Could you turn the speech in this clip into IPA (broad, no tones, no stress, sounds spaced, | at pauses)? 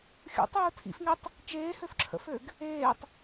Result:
xʲ ṵ tˤ uː tʰ ḭ f ŋ e tˤ | t͡ʃ eː h ø f ǁʰ ə̰ f ø ɡ | eː tˤ